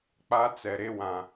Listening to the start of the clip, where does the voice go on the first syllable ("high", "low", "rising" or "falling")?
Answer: high